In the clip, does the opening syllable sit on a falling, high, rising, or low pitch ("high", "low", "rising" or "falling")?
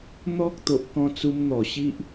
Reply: high